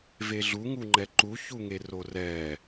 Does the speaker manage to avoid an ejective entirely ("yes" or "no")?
yes